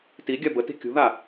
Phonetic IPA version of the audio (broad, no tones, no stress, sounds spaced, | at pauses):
t i ɡʲ a b ə t i̤ kʲ ṳ ð a